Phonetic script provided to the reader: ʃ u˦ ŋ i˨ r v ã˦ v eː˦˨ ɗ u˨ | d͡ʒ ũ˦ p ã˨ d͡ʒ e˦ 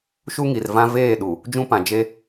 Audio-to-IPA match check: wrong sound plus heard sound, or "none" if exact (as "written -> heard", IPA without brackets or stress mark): none